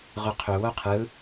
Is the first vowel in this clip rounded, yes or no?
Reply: no